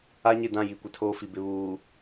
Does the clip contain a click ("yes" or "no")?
no